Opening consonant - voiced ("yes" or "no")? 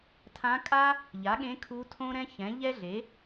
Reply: no